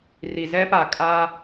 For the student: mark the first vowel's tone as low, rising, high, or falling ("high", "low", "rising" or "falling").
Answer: low